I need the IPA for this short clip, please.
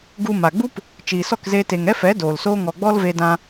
ɡ u˧ m a˨ ɡ͡b u˦ p | t͡ʃ iː˨ s ɔ˦˨ k z eː˧ t e˨ ŋ ɛ˦ f ɛ˨˦ d oː˨ l s oː˦ ŋ ɔ˧ ɡ͡b ɔ˦ l v e˧ d ã˧

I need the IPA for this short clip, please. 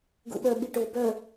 ɡ ṵ ɓ œ ɓ i ʈ o b œ

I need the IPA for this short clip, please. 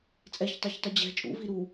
t͡sʼ ɛ ç tˤ ɛ ç tˤ ʉ d͡ʑ ɛ̤ t͡ʃʼ ṵ v i ɾ u

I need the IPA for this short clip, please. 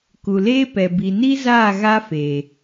k u˨ l eː˦ p ɛ˨ b i˨ n i˦ z aː˦˨ ɣ a˦ f eː˨

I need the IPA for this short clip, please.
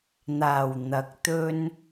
n̪ aː˨˩ w n̪ ɐ˨˥ k̚ t̪ ɵ˥ n

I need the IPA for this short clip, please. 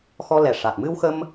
x ɔ˧ l ɛ˨˩ ʂ a˨˩ t̚ m ɨ˧ w x ə˧ m

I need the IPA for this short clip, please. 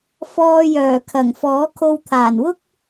f ɔː˧ j œː˨˩ kʰ ɐ˨˩ ŋ f ɔː˨˥ kʰ o˧ w t̪ʰ aː˨˩ n w ʊ˥ k̚

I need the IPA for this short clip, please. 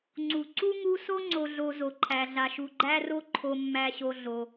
ŋ͡ǀ u˩ ǀ u˥ ŋ u˦ s o˥ ŋ͡ǀ o˨ ɮ o˨ z o˩ ǃʰ æ˩ ɮ a˩ ʃ u˩ ɡ͡ǃ æ˦ r o˦ ǃʰ o˨ mː æ˨ ɕ o˨ ɮ o˩

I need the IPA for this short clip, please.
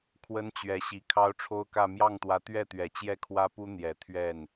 kʰ w ə˥ n t͡ɕ ɥ ɛ˧˥ ɕ i˧˥ kʰ ɑ˥ ʊ̯ ʈ͡ʂʰ o˥ ʊ̯ k ä˥˧ m j ɑ˥˩ ŋ t̪ w ä˧˥ t̪ ɥ ɛ˥˩ t̪ ɥ ɛ˨˩ t͡ɕ j ɛ˥˩ kʰ w ä˥ p u˥ n̪ j ɛ˨˩ t̪ʰ ɥ ɛ˥˩ n

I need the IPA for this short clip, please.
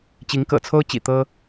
t͡ɕ i˨˦ ŋ k ɤ̰˨˩ t͡sʰ o˦ ʊ̯ t͡ɕ ḭ˨˩ t̪ ɤ˦

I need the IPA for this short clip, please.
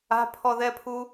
a̤ pʰ ɔ ð ɛ pʰ u

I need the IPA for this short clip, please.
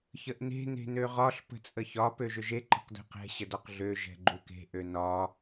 ç ə ʔ n e̤ n e̤ n ø ʁ ɒ ɬ p ə̤ t͡sʼ ə ç ɒ p ø ʒ ʏ ʒ e ǃ ə̤ q d e̤ q ɛ̤ ɕ ə d ɒ q ɮ ø ʒ ɛ̤ ɡ͡ǃ u k e̤ ʔ ø n ɒ

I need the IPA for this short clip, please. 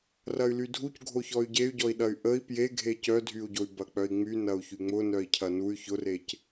r ɐ y̯ l y dʱ u c ɡʱ o ç ɔ y̯ ɟ e y̯ ɟ ɔ i̯ ɗ ɐ y̯ ʔ ə i̯ p j e ɡʱ e c œ dʱ y u̯ ɟ o y̯ b ɐ k͡p œ i̯ ŋ͡m y n ɐ u̯ ç y ŋ͡m ʊ n œ i̯ cʰ ɐ n u y̯ ç ʊ r e c

